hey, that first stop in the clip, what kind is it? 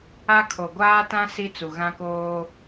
aspirated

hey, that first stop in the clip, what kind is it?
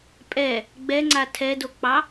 ejective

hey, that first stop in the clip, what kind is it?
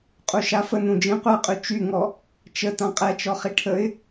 ejective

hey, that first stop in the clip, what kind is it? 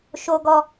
plain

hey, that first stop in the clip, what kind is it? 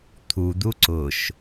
aspirated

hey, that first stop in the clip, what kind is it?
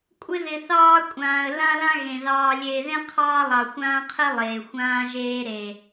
ejective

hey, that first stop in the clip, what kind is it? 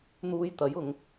plain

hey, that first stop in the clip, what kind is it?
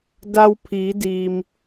plain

